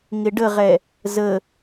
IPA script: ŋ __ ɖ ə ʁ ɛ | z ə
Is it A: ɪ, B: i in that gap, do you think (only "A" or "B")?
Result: A